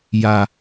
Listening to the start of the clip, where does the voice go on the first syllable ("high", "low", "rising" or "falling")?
low